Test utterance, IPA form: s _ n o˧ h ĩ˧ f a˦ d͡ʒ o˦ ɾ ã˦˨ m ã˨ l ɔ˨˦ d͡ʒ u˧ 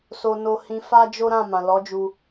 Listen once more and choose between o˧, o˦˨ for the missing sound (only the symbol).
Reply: o˧